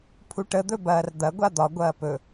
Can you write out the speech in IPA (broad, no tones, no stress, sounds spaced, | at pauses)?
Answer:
pʰ u ʈ ə d̪ ɵ b ɐː r d̪ ɐ ɡʷ a d̪ ɒ ɡʷ ɐː p ɵ